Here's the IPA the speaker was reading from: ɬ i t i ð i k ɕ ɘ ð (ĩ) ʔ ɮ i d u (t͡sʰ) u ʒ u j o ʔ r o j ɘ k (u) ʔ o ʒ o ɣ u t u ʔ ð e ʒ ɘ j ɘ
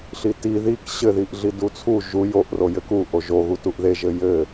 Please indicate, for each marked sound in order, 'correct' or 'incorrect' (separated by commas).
incorrect, correct, correct